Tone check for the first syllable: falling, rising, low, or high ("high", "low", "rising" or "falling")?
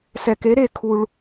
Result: low